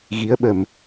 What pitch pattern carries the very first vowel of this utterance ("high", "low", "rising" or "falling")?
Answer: rising